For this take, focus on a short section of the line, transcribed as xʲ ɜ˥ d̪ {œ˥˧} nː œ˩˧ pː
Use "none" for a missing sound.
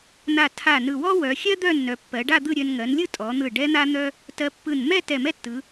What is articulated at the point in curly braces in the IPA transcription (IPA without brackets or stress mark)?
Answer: œ˥˧